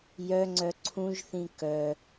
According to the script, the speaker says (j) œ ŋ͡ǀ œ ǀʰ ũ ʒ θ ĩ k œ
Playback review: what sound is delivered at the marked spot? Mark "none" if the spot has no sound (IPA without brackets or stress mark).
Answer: j